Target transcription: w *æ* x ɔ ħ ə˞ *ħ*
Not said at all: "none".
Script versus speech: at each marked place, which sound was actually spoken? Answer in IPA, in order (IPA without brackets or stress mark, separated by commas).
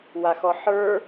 a, none